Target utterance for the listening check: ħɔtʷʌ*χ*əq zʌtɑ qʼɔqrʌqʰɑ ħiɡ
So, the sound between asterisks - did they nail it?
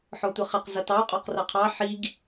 yes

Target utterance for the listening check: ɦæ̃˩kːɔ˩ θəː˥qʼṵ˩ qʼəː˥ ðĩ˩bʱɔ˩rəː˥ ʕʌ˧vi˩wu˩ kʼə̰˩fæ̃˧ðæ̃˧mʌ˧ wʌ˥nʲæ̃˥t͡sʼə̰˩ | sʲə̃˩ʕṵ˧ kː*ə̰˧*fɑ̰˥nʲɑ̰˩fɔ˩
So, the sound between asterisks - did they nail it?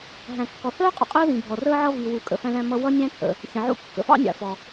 no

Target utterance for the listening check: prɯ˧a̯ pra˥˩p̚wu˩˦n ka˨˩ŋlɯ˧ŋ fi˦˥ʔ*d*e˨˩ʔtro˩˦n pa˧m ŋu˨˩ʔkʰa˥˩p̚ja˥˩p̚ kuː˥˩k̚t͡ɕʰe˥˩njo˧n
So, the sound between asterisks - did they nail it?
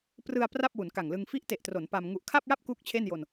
no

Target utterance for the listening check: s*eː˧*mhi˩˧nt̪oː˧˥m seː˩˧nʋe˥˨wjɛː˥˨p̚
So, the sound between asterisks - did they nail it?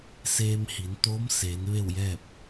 yes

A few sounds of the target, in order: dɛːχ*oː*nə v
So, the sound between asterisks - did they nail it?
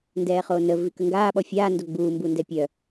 yes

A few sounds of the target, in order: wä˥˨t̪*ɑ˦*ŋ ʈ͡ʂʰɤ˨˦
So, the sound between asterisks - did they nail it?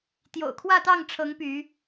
no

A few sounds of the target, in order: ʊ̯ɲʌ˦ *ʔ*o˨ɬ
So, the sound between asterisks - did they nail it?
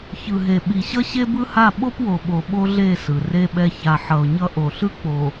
yes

